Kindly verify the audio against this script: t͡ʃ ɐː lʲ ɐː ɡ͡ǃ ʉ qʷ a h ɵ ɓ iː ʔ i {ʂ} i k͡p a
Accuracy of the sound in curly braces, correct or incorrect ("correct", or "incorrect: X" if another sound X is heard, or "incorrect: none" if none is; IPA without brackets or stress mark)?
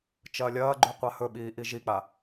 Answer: incorrect: ʒ